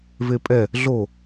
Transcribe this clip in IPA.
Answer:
vepʼɛ | ɮo

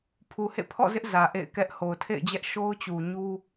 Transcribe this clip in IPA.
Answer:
pʰu˨hḛ˦˨pʰɔ̰˦˨zɪ˦ʔ zä˨ʔḛ˦˨ɪ̯kɛ˦ʔ ho˨ʊ̯tʰḛ˦˨ɪ̯d͡ʑɛ˦ʔ ʃo˦ʊ̯t͡ɕu˨ɲu˦

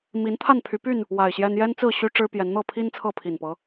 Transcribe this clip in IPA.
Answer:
mi˨˦nt̪ʰa˥˨npʰy˨˦py˥˨n | wa˨˩ɪ̯ɕjɛ˦n jɛ˦nt͡sɹ̩˥˨ ɕy˦ ʈ͡ʂɻ̩˦pjɛ˨˦n n̪ɤ˥˨pʰi˦n t͡sʰɤ˥˨pʰi˨˩npɤ˨˦

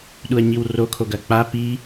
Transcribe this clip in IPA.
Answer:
ɗuɐ̯ɲiwrokʰoɡ ɐk͡pa pi

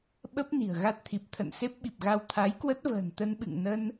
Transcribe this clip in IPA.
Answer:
ɓə˦˥p̚ ni̤˨˩ə̯ɣa˦˥t̚t̪ʰi˨˩p̚ t̪ʰə̰˧˨nse˦˥p̚ɓi˨˩p̚ɣa˧w t̪ʰa˨˦jkwə˦˥t̚və̤ː˨˩n t̪ə˧nɓɨ̰˧˨ŋ nə˧n

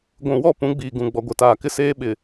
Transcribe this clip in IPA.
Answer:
ɡʷũ˨wɔ˦˨pũ˨˦ɡ͡biː˨ ɡũ˨ ɡ͡bɔ˨ɡʷɛ˨taː˨kɪ˦ seː˦ɓɪ˨

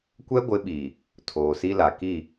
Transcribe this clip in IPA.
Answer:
kʷɛ˦ɡʷɪ˨˦ɓiː˨ | tʰoː˨si˦la˨ ki˦˨

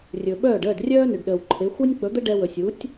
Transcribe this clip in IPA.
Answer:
rʲɵ˩ɓœː˥˩ɖ əː˥˩ɖrʲœː˥nʏ˩ɖ ɗəː˩wǃʰe˩˥ xʷɜ˥nʲk͡pɵ˩˥d̪ə˥ ɖɛ˧wɵ˩sʲ u˩˥tʲ

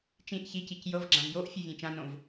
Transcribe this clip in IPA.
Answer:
t͡ʃĩʔ çicic jɤvɡ͡ǁãv joʔ fʲuvʲẽt͡ʃãnõv

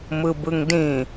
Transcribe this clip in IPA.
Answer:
mɯbɯŋdĩ

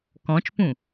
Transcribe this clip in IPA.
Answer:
kɔ̃t͡ʃpũ

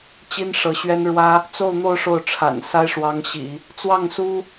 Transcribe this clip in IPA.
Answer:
t͡ɕi˥nʂɤ˧˥ɕɥɛ˥nɻwä˥ | t͡so˥˧ʊ̯n̪o˥˧ʊ̯ ʂo˥˩ʊ̯ʈ͡ʂʰa̰˨˩n sa˥ɪ̯ʂwɑ˧˥ŋɕḭ˨˩˦ | t͡swɑ˥˩ŋsu˥

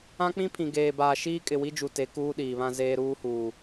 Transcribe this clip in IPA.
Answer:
ã˦k͡pĩ˦pʰĩ˨ ɡeː˨baː˨ ʃiː˦kʼɪ˨wi˦d͡ʒu˨ te˨˦ kuː˦ɗiː˨βã˦zeː˦ ɾuː˦huː˨

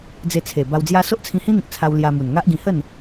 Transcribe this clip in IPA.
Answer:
d͡ze˧t͡sʰe˨˩ ba˧wd͡zja˦ so˦ʔt͡sʰĩ˧hĩ˦n̪ĩ˨k̚ t͡sʰa˧w lja˧ mu˨˩nŋa˦ʔɡĩ˧ hə˥˧n

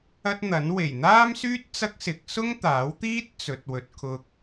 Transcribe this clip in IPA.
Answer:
ɐ˥t̚n̪ɐ˨˥n we˨˩jn̪aː˥msyː˥t̚ t͡sɐ˥k̚sɪ˨˥k̚ sʊ˥ŋt̪aː˨˥wt̪iː˥t̚ t͡sɵ˨t̚wɵ˨t̚kʰʊ˧k̚

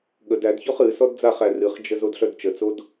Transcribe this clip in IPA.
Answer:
ɠəd ædçɔχ ɨ sɔdd͡zaχæ rɨχd͡ʒə zodɬœdt͡ʃət͡sod

